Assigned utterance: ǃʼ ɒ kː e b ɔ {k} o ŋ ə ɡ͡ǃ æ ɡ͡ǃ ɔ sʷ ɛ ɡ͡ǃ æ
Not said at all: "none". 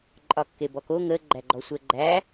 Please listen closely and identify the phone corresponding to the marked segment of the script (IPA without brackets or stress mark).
k